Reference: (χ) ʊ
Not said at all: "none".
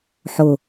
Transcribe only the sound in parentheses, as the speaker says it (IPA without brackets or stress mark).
ħ